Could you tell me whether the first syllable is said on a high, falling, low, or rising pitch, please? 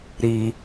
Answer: low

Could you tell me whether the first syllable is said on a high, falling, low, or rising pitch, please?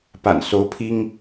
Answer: low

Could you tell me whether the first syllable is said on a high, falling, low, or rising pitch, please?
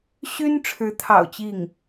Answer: high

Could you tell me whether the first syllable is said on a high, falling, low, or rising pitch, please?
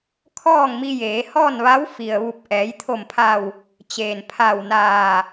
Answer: falling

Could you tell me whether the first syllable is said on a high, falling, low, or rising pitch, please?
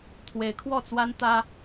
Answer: rising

